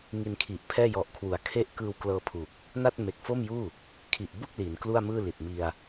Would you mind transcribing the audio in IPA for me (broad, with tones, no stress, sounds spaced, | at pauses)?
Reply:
ŋ i˧ n kʰ i˨˩ ʔ pʰ ɛː˥˩ j ɔ˨˩ ʔ kʰ w u˩˦ a̯ kʰ e˥˩ ʔ k ɯː˧ w k l ɤː˧ pʰ u˨˩ k̚ | n a˥˩ t̚ m e˨˩ k̚ f o˥˩ m j uː˥˩ | kʰ i˨˩ ʔ b u˥˩ k̚ l i˩˦ n k l u˥˩ a̯ m ɯː˥˩ l i˨˩ t̚ m i˧ a̯